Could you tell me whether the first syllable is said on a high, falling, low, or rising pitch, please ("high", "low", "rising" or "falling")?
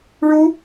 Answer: high